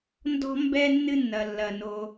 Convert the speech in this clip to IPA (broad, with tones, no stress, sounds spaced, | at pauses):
n d ɔ̤˥ m b ɛ˥ nː ɨ˥ nː ɐ˩ lː ɐ˩ n o˩